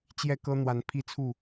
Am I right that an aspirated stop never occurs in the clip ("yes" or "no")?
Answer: no